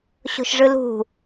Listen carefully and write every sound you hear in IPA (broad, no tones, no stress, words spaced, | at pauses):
ɕo̤ʃʐɯlṳ